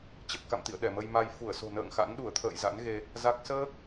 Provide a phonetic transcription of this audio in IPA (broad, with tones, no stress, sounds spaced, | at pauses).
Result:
t͡ɕ ə˨˩ p̚ k a̰˧˨ m t̪ ḭ˧˨ ə̯ ɗ ɛ˧˩ m ə˧ j m a˧ j f u˧˩ ə̯ s o̤˨˩ n ə̰ː˧˨ ŋ x a̰˧˥ n ɗ u˧˩ ə̯ t̪ʰ ə̰ː˧˨ j z a̰˧˥ n ɣ e˧ | z a˦˥ k̚ s əː˦˥ k̚